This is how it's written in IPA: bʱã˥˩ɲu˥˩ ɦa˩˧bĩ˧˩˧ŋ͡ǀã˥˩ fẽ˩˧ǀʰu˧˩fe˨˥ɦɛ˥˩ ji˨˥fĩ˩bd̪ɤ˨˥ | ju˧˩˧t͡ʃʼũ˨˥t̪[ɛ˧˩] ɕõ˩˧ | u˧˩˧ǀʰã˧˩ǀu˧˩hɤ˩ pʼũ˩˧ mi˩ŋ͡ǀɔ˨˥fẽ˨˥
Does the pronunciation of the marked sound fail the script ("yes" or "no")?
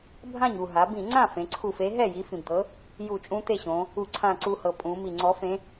yes